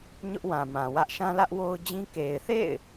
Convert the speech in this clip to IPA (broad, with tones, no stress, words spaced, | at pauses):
ɲʊ˦ʔwã˨mã˨wä˦ʔ ʃã˦lä˦ʔwo˦ʊ̯d͡ʑĩ˦ ke˨ɪ̯θḛ˦˨ɪ̯